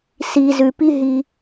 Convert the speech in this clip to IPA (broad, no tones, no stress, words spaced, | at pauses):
si zʉpiɦi